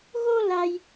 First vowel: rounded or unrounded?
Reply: rounded